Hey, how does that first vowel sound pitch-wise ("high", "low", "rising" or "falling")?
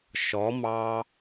rising